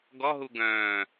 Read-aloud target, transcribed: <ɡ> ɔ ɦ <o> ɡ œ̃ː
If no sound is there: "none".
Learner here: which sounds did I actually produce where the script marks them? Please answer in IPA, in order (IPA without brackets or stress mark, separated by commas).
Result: ɡ, u